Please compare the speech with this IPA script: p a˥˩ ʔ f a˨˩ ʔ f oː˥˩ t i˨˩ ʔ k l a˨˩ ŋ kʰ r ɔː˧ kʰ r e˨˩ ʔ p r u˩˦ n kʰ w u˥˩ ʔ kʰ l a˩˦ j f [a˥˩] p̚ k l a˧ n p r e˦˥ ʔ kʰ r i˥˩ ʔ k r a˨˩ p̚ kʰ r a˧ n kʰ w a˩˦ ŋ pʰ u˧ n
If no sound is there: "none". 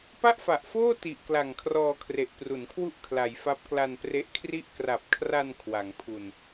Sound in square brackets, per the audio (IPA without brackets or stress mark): a˦˥